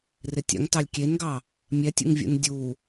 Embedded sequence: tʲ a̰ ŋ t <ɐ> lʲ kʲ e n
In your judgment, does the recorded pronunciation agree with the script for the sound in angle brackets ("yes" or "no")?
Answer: no